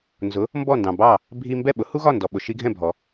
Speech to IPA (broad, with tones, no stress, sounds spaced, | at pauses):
n z ʊ˩˥ | m b ɔ˥˩ n d ɑ̃˩ b ɑ˥˩ | bʱ i˧ m b ɛ˥˩ ɓ ʊ˩˥ h u˥ ɣ ɒ˥˩ n d ɔ˩ ɓ ʊ˩ ʃ i˧ ɡʱ ɛ̃˥˩ bʱ ɔ˩